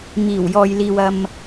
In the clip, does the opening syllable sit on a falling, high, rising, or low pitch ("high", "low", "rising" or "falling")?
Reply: low